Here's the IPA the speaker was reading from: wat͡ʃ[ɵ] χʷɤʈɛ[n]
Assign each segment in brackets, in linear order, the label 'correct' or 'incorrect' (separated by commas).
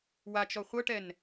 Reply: incorrect, correct